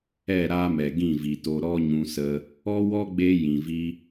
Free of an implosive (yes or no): yes